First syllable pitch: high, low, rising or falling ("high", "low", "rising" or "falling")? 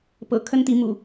low